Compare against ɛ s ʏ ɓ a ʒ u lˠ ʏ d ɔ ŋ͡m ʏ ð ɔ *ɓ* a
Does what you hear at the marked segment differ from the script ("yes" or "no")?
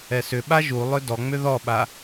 no